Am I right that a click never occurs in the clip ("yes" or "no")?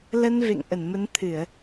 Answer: yes